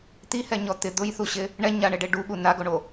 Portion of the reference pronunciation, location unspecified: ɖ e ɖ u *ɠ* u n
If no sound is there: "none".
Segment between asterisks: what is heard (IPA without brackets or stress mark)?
ɠ